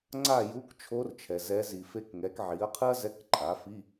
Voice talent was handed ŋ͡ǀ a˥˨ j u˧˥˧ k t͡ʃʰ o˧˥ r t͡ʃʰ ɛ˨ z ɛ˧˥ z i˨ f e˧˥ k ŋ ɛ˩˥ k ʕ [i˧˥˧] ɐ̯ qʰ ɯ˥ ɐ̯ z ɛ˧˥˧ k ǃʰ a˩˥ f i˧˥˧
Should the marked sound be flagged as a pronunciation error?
yes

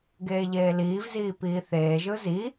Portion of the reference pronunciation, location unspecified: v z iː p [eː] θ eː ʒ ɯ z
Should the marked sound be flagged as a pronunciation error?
yes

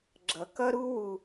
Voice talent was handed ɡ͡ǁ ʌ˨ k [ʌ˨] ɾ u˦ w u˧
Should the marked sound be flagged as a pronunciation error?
yes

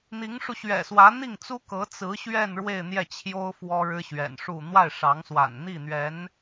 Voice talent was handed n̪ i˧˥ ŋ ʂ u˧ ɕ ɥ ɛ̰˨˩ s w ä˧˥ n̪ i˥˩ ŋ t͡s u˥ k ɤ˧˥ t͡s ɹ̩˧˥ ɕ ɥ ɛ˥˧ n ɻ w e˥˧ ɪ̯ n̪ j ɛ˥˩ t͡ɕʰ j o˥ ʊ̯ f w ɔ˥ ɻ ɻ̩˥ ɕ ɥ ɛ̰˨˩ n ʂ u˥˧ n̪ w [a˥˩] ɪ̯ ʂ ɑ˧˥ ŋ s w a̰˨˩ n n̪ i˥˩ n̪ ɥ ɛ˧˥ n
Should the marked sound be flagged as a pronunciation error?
no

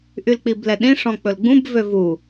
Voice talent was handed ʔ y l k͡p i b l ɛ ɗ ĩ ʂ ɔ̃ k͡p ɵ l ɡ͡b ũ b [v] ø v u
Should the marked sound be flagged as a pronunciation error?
no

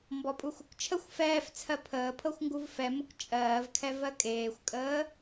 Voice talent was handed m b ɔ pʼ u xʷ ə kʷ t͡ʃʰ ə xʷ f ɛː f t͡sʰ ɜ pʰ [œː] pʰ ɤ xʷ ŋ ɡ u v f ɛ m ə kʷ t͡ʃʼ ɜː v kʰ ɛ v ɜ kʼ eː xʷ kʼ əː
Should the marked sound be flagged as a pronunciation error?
yes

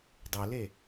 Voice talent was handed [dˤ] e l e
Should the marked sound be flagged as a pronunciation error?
no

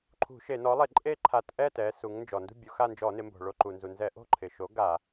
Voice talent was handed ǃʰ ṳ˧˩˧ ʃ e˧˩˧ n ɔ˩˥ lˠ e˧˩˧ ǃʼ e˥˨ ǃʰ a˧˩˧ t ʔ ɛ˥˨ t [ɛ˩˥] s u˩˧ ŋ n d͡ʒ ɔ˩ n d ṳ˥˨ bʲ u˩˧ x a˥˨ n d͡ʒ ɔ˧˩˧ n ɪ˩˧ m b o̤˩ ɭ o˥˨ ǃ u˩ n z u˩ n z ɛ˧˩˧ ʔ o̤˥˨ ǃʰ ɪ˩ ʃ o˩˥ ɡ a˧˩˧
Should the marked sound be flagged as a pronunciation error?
yes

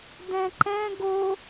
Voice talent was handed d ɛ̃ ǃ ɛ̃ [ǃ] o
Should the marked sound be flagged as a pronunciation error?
yes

